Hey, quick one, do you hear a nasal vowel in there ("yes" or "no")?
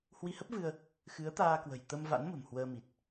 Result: no